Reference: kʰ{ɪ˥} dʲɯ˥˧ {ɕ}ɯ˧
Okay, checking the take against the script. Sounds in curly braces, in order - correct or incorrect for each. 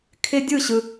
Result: correct, correct

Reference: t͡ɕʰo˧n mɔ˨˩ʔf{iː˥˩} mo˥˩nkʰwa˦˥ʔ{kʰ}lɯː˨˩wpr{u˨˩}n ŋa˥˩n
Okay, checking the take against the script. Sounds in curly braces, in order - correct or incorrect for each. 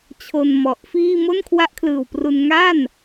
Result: correct, correct, incorrect: u˧

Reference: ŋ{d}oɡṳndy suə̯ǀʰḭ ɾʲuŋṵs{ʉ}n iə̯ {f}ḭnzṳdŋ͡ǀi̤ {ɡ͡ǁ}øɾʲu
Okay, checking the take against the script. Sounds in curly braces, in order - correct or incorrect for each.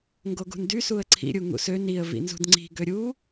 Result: incorrect: ɡ, incorrect: ø, incorrect: v, incorrect: ɡ

